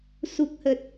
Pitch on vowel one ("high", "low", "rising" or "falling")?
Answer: low